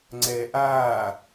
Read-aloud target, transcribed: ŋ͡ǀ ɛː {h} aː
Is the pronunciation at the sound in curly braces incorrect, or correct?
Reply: incorrect